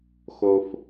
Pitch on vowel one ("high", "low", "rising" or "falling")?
high